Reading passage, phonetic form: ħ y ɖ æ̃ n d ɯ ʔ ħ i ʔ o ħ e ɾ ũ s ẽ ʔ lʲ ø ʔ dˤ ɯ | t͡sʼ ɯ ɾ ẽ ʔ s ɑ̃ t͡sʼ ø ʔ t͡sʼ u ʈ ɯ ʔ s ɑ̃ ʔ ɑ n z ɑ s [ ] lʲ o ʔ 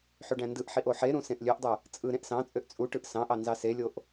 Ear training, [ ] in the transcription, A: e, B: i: A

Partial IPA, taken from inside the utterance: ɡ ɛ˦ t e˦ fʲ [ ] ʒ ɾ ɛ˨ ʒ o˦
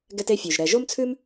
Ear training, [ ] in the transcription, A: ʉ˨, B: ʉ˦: A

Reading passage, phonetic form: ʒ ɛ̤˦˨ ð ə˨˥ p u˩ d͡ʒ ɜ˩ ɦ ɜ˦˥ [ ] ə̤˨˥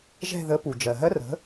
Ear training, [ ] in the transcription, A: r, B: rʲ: A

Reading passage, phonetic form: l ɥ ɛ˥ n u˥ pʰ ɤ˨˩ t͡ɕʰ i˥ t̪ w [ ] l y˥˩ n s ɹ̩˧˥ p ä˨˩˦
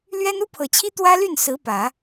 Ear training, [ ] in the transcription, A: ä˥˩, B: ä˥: B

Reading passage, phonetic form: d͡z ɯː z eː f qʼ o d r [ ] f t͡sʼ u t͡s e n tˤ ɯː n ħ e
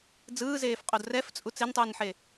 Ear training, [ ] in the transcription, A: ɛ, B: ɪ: A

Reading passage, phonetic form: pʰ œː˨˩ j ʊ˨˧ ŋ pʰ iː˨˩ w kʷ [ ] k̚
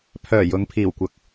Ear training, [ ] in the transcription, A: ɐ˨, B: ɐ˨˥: B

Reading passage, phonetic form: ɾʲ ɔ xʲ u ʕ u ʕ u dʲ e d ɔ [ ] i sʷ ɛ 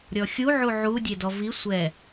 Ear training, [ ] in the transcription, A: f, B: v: B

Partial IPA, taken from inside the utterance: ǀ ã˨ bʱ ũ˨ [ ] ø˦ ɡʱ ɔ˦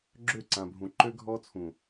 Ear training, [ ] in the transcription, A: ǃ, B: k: A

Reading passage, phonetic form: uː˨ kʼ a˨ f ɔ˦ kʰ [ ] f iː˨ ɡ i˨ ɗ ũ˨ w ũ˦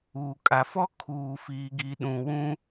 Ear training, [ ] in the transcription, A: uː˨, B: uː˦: A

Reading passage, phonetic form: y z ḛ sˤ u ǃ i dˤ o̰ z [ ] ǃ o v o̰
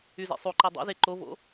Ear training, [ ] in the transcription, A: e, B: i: A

